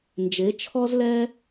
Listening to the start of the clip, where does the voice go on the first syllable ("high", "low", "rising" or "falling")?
rising